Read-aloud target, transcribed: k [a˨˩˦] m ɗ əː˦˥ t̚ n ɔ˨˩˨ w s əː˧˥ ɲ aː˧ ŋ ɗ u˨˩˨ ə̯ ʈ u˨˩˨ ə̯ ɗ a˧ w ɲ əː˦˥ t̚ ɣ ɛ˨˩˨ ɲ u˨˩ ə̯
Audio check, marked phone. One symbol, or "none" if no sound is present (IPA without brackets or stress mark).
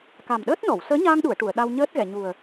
a˨˩